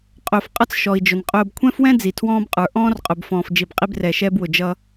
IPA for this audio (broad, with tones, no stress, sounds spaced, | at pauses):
qʼ ʊː˨ f qʼ ʌ˦ t͡s ʃ ɔ˨ i̯ d͡ʒ ʊ˨ n qʼ ʊː˨ b kʷʰ ɛ̃˦ f w ɛ̃˦ d͡z i˨ tʰ w ɔ̃ː˦ b qʼ ə˞˨ ʔ ɔ̃ː˦ r qʼ ʊ˨ b f ɔ̃ː˨ f d͡ʒ i˨ b qʼ i˦ b r ɛ˨ ʃ ɛː˦ b w ʊ˨ d͡ʒ ʌ˦